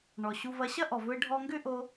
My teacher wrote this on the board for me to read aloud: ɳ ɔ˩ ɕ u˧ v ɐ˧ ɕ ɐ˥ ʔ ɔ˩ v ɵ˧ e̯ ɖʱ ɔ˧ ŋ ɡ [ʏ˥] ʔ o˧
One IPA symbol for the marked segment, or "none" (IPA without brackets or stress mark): ʏ˥